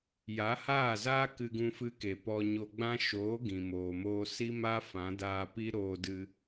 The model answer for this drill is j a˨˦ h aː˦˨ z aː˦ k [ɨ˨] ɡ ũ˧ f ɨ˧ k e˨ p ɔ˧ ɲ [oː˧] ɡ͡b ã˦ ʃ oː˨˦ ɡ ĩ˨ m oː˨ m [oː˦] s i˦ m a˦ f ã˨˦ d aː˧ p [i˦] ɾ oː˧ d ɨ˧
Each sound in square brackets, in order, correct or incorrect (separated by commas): incorrect, incorrect, incorrect, correct